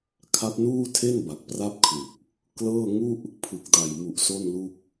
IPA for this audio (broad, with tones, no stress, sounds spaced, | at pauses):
kʰ a˦˥ p̚ n uː˥˩ tʰ e˥˩ n b a˨˩ k̚ p r a˥˩ p̚ kʰ l u˨˩ k̚ | k l ɤː˥˩ ŋ u˥˩ ʔ | pʰ ɯ˨˩ k̚ d a˨˩ j m u˨˩ ʔ s o˥˩ n l u˥˩ k̚